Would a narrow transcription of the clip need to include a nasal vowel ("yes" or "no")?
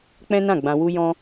yes